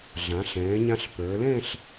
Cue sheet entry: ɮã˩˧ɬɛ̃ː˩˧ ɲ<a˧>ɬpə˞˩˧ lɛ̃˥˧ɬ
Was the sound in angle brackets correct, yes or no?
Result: no